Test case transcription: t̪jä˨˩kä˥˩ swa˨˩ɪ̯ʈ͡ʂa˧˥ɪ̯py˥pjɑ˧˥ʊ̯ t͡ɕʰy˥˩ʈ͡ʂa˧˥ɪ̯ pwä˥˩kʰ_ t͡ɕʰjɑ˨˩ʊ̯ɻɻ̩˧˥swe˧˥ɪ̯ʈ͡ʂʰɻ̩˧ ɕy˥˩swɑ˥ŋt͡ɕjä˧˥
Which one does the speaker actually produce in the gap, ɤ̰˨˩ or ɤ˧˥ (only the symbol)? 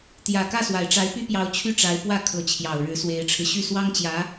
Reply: ɤ˧˥